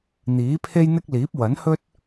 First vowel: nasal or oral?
oral